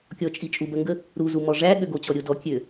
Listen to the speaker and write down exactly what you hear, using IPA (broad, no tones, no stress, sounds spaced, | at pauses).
kʲ ɔ t͡ʃʼ i t͡ʃʼ u b ɜ ŋ ɡ ə | ɾ u z u m ɔ ʐ æ ɠ ø ɡ o t͡ɕ ɔ ɾʲ o d ɔ kʲ ø